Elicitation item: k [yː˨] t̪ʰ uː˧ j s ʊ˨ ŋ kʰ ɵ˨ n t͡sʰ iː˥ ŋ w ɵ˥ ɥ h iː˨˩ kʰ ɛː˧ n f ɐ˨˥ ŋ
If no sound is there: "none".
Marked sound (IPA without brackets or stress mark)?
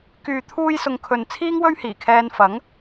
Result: yː˨